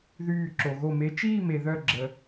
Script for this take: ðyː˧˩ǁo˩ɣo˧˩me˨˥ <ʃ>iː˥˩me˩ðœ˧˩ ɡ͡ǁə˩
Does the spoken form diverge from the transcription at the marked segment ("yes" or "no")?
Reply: yes